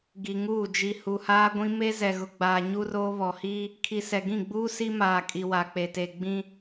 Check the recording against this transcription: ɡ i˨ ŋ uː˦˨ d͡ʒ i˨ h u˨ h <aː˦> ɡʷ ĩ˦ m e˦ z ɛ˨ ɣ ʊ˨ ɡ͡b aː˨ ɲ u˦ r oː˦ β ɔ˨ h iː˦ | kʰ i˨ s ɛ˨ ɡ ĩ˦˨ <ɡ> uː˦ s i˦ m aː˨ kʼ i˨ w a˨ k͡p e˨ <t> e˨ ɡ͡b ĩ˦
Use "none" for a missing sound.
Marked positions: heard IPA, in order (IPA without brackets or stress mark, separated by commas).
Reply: aː˦, ɡ͡b, t